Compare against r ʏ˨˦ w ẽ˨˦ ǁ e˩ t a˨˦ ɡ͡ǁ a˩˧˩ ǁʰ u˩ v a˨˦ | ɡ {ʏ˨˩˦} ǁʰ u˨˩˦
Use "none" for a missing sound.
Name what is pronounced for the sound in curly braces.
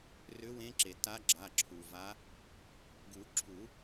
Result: u˨˩˦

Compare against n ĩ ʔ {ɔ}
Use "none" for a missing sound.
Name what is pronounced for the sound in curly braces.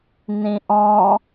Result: ɔ̃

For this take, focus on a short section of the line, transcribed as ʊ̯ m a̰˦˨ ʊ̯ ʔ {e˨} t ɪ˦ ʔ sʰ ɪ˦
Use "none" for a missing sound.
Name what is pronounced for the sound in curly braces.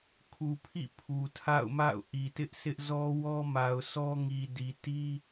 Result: i˨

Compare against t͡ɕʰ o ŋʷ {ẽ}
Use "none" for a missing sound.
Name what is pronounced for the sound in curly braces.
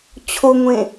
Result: ẽ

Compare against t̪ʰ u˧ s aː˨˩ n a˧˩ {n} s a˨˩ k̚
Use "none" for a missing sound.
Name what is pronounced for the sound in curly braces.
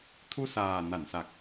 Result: n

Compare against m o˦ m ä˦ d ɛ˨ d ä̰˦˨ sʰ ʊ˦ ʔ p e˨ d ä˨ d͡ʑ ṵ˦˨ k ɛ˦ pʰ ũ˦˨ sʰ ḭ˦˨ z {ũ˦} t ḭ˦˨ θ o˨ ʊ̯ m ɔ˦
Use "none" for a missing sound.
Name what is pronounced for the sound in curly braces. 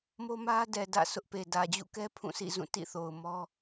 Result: ũ˦˨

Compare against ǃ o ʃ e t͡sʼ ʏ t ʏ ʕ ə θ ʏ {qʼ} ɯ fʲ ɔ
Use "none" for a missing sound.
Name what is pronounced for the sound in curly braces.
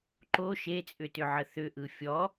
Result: ʔ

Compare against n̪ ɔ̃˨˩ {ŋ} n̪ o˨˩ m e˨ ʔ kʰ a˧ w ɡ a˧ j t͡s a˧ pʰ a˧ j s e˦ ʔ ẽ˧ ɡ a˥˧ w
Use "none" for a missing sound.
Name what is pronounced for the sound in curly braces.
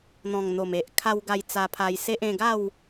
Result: ŋ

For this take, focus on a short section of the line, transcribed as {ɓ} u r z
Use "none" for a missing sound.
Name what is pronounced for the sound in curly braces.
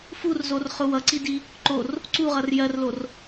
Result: f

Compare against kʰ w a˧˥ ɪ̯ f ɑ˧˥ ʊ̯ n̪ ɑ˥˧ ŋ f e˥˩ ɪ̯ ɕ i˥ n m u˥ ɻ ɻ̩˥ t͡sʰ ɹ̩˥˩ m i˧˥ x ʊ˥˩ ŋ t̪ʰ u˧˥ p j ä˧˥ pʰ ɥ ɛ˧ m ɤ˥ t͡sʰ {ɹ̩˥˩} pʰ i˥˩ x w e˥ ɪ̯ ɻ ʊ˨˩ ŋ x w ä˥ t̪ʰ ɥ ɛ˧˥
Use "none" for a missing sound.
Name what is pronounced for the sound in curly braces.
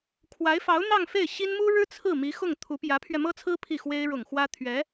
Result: ɹ̩˥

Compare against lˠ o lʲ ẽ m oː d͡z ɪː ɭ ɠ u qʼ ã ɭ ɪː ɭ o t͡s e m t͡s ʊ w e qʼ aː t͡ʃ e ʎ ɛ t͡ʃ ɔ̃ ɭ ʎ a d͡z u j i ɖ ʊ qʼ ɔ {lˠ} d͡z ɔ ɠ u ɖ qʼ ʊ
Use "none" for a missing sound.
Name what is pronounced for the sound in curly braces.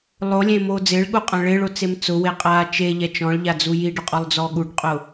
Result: lˠ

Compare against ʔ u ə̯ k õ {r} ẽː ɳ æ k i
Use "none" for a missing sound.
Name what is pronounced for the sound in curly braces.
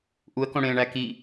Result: ɽ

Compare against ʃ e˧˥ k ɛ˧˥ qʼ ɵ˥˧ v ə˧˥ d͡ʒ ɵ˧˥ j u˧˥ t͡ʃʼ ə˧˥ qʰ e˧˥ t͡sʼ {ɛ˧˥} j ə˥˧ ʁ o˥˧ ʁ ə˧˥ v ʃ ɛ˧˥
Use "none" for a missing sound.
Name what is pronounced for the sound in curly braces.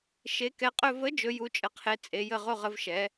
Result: e˧˥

